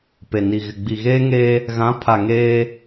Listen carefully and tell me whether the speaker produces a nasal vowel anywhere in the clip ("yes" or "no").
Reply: yes